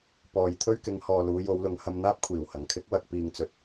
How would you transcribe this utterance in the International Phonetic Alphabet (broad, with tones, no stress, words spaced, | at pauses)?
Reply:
pɔː˨jt̪ʰɵ˥ɥkɪ˨˧ŋhɔː˨ luː˨˧jo˨˧wlʊ˨˧ŋ hɐ˧mn̪aː˥p̚ kʷʰiː˨˩w hɐ˨˩ŋkʰɪ˥k̚wɐ˧k̚ piː˨ŋt͡sɵ˨t̚